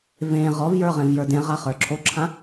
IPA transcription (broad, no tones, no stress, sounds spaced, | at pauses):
v ẽ ʁ ɔ v j ə˞ ʁ ẽ v j ə˞ d ẽ ʁ a χ ə˞ ǁʰ o ǁʰ ã